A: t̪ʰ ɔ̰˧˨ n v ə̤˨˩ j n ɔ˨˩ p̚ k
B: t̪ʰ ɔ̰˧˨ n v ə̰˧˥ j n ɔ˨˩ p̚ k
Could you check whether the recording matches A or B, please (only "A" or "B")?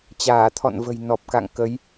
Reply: A